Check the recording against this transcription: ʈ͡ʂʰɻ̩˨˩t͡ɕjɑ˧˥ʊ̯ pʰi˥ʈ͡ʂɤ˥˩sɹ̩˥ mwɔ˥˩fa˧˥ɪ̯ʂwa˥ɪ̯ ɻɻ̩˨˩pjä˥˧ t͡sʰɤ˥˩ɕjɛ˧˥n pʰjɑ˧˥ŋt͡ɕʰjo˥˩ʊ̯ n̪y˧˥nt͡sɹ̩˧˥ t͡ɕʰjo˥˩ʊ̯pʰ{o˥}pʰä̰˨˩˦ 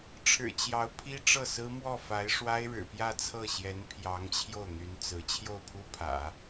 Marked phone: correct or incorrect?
incorrect: u˥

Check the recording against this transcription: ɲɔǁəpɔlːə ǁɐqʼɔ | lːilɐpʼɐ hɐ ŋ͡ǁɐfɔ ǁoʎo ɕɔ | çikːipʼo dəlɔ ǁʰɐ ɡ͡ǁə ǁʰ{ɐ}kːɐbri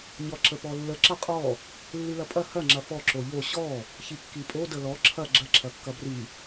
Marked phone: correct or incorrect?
correct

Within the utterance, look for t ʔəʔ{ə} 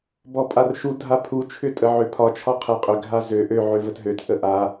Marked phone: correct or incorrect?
incorrect: a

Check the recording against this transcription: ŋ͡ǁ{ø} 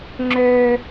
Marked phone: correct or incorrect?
correct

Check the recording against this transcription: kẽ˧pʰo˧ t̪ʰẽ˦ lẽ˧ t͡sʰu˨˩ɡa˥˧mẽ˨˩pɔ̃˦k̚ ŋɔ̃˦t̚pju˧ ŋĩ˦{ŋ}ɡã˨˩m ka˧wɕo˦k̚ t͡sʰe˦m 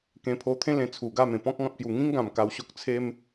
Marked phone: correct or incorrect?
correct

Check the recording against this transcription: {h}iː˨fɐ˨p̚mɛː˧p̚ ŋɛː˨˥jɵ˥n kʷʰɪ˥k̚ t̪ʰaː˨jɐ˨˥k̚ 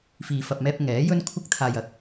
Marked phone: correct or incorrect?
incorrect: f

